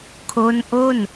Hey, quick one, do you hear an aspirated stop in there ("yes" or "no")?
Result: yes